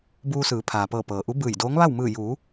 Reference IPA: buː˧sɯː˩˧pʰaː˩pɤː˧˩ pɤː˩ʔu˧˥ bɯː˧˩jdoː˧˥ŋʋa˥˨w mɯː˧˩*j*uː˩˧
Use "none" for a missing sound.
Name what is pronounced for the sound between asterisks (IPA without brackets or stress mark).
j